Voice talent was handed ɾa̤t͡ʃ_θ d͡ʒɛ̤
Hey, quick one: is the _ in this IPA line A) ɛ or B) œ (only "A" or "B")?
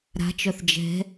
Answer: B